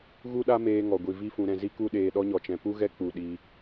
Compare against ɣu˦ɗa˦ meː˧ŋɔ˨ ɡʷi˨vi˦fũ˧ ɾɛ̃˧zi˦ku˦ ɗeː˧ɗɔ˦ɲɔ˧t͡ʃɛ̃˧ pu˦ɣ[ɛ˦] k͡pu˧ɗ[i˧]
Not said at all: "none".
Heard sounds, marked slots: ɛ˦, i˧

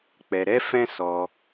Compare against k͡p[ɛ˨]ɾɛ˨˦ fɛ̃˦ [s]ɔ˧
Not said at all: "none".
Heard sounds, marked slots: ɛ˨, s

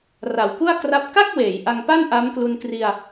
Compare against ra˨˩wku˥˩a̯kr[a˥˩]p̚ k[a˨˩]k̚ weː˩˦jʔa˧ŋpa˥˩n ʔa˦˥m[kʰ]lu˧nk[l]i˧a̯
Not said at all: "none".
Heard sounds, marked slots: a˦˥, a˥˩, k, r

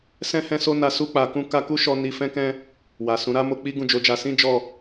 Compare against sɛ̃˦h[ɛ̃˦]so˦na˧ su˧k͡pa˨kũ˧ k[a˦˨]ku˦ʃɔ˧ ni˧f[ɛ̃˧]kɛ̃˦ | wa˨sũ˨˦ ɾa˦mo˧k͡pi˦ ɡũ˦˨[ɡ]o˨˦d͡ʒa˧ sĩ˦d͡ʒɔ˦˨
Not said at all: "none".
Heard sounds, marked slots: ɛ̃˦, a˧, ɛ̃˦, d͡ʒ

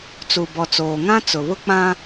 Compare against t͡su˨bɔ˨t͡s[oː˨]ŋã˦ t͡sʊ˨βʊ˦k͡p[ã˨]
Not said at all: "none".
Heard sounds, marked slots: oː˨, ã˦

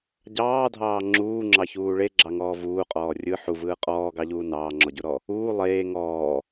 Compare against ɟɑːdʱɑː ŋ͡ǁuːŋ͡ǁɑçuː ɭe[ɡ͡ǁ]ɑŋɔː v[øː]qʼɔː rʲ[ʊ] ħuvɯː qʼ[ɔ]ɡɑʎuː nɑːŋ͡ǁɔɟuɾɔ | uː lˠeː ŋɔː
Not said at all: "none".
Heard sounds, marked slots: ɡ͡ǁ, uː, ɯ, ɔː

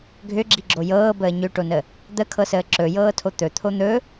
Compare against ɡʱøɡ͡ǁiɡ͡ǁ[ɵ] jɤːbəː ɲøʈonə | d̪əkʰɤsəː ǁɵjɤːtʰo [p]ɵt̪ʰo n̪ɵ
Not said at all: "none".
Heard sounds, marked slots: o, t̪

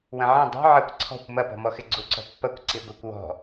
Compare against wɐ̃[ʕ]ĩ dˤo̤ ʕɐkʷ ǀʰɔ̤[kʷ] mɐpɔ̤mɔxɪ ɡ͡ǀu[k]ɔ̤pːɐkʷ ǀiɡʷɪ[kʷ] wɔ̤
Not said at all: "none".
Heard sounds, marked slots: ʕ, kʷ, ǀ, kʷ

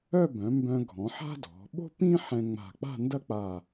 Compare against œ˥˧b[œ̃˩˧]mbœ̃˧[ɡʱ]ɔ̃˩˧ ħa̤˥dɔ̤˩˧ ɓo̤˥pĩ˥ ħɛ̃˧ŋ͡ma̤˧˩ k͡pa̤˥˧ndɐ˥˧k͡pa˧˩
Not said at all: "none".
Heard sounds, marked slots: œ̃˩˧, ɡʱ

